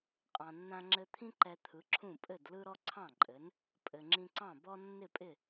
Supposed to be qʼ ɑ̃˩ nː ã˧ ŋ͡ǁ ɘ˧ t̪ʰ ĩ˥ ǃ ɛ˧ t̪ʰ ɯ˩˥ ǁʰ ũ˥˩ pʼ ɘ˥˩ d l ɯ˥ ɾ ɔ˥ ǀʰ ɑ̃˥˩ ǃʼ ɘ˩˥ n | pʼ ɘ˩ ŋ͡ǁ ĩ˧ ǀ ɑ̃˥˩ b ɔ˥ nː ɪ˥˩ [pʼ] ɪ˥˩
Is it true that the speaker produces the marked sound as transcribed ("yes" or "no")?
yes